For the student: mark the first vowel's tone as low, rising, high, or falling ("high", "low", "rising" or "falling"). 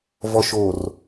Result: low